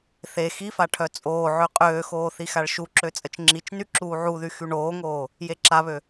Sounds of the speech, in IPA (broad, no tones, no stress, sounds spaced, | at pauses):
θ e x i f a ʈʰ œ t͡sʼ oː ʕ ø qʼ øː x oː θ i x a ɭ ʃ u ǁ ø t͡sʼ ə t͡ʃ ŋ͡ǁ i t͡ʃ n y ǁ uː ʕ u ð y x y ɳ oː ŋ oː | j e ǁ a β ø